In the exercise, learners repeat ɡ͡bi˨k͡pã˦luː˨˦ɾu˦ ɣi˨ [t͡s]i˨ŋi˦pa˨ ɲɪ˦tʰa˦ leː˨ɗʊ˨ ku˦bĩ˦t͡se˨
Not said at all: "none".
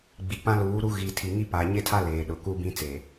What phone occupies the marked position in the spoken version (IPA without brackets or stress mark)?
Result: tʰ